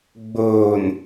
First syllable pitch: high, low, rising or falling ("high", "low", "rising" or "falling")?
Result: low